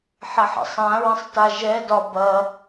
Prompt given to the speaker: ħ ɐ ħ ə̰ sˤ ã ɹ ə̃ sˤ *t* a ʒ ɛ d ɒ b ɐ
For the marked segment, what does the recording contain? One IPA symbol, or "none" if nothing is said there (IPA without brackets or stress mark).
t